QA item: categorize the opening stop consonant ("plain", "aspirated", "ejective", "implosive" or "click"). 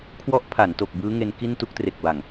aspirated